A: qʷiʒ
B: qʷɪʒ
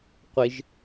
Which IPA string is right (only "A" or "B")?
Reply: B